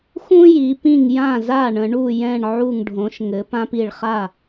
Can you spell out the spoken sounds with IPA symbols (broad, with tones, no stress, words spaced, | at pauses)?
xũ˦ji˩˧pĩ˧˩ŋ jã˥˩za˥˩ɳə̃˩˧ ɳu˧˩jɛ̃˧˩ɳ ʕu˧˩ŋɖʱõ˩˧ʃŋɘ˩˧ pã˦pi˧˩ɭχa˥˩